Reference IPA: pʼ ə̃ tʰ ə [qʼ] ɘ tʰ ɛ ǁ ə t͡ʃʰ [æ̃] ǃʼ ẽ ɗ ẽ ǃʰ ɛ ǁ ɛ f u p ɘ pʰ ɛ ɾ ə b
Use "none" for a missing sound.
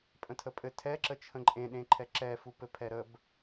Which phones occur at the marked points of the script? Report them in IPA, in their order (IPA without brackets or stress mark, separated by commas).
pʼ, ə̃